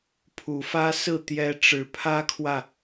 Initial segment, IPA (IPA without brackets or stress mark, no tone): pʰ